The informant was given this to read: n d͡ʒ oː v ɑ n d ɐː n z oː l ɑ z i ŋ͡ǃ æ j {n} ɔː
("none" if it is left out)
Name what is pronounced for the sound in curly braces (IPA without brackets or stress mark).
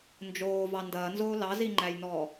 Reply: n